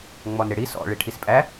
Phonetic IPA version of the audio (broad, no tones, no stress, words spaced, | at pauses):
ŋ͡mɔnɾɪɽi sɔ̰ ɭiʈʰispʼæ